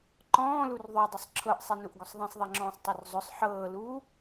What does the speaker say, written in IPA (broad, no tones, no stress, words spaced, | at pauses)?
ǃɔ̃ːlur ðˤydˤʊsˤ ǁʰɤʔsˤenuʔɡʊsˤ ðˤẽsˤðˤeŋ͡ǁɔ̃ːsˤtˤyr zˤʊsˤ ħɤːluː